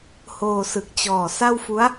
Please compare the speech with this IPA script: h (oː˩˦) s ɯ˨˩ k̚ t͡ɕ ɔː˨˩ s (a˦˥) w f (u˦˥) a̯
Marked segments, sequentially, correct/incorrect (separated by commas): incorrect, incorrect, correct